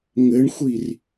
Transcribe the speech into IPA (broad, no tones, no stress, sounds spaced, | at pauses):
ŋ ɘ ɳ xʷ i r